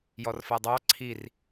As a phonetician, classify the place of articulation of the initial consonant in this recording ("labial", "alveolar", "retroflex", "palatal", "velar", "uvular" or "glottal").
palatal